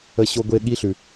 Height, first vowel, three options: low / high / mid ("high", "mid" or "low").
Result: mid